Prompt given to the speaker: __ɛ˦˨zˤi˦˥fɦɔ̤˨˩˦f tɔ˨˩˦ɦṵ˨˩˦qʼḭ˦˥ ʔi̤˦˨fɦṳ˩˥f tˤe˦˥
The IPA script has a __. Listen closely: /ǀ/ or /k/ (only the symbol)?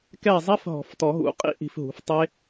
k